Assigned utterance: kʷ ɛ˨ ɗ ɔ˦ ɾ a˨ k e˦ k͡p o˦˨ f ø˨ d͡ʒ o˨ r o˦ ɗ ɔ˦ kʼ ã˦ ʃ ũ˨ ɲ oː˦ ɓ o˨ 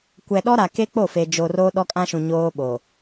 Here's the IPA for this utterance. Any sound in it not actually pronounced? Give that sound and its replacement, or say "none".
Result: ø˨ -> e˨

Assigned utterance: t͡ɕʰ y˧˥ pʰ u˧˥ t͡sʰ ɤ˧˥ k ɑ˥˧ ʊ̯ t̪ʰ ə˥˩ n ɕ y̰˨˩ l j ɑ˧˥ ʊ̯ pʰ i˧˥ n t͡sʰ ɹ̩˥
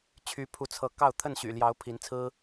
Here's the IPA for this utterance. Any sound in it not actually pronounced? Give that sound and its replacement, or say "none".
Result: none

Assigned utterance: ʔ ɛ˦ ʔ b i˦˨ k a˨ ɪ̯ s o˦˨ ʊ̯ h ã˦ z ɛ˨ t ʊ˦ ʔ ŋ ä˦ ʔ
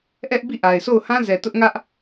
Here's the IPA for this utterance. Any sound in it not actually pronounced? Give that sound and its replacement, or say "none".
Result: k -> ʔ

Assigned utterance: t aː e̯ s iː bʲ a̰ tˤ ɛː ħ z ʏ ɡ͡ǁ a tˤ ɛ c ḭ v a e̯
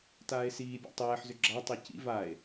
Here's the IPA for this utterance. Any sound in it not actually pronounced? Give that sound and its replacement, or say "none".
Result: none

